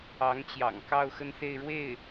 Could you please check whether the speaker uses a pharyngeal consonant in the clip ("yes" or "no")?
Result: no